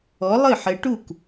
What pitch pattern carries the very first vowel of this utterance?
rising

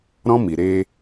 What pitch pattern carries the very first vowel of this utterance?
high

